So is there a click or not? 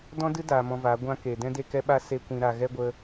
no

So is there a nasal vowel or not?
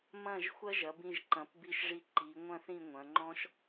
yes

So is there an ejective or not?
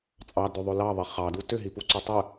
yes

